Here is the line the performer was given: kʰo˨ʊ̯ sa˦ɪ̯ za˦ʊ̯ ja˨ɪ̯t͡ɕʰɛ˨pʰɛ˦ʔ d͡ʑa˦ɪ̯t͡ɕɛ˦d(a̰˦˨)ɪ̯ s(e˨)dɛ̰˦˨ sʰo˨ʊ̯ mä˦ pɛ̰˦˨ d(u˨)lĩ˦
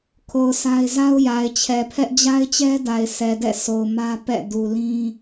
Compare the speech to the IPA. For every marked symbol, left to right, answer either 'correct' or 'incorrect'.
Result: incorrect: a˨, incorrect: ɛ˨, correct

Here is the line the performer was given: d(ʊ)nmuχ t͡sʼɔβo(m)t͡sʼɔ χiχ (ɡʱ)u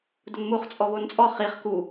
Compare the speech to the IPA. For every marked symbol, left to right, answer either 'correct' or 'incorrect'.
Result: correct, incorrect: n, incorrect: k

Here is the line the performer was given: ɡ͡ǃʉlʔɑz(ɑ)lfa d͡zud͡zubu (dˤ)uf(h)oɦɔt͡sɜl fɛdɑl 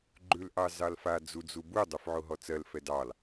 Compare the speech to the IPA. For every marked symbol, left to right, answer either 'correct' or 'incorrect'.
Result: correct, correct, incorrect: ʕ

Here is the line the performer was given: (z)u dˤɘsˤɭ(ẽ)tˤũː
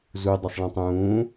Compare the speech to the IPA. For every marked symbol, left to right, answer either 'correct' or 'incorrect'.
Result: correct, incorrect: ĩ

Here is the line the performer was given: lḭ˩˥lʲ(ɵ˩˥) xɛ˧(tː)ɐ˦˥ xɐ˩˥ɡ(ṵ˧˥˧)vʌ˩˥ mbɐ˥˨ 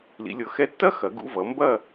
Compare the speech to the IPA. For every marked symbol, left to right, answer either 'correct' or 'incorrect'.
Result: incorrect: ɤ˩˥, correct, correct

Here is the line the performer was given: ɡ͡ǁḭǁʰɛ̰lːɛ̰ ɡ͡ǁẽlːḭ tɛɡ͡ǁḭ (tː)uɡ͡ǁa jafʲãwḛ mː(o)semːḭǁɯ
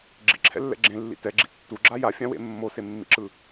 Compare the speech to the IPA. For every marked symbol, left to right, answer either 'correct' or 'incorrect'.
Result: correct, correct

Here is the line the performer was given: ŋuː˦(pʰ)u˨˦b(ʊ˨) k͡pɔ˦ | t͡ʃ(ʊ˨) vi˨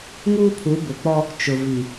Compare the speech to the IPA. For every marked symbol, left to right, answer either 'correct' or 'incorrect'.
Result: correct, correct, correct

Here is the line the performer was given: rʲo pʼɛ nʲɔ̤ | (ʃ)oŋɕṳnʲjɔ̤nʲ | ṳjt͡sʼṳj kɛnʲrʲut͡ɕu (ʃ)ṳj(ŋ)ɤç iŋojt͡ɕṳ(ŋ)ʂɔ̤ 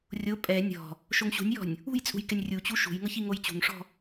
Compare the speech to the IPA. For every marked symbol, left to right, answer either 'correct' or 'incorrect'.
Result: correct, correct, correct, correct

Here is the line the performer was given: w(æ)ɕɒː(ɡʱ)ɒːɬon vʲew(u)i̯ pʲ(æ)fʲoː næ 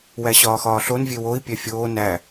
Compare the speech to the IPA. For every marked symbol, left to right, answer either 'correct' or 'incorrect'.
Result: correct, incorrect: x, incorrect: o, correct

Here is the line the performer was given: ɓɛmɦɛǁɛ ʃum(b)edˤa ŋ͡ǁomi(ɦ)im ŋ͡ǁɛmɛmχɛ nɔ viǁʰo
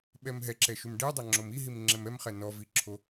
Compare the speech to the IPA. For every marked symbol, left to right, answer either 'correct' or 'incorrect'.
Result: incorrect: ɖ, correct

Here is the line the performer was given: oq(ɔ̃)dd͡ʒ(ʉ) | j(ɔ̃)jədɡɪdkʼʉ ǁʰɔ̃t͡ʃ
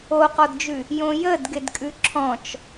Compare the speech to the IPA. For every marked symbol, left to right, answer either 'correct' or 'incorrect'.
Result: incorrect: ɔ, correct, incorrect: õ

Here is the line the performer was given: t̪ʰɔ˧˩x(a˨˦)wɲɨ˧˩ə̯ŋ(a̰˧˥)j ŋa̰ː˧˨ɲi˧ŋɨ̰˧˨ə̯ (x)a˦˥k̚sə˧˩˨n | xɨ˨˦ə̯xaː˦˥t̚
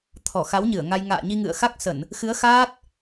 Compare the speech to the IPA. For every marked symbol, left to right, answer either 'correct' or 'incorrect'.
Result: correct, incorrect: a˧, correct

